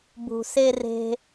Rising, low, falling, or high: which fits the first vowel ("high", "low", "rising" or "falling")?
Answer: low